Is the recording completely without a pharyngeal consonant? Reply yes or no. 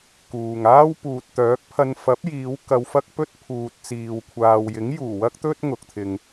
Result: yes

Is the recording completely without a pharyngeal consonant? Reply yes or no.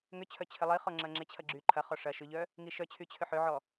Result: no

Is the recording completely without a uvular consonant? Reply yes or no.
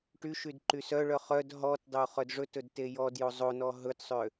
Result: no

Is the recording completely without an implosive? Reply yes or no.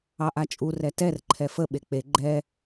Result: no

